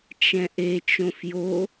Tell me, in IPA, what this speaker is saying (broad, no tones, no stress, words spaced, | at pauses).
t͡ʃɛ̃ʔe t͡ʃõfjo